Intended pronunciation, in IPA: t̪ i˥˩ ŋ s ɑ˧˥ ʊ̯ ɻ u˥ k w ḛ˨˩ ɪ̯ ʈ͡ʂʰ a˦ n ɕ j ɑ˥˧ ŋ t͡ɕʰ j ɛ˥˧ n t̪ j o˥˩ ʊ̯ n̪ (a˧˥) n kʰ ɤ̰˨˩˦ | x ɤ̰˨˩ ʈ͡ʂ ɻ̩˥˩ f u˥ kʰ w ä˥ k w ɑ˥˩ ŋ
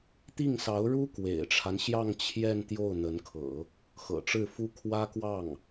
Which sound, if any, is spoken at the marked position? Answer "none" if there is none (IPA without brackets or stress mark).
ə˧˥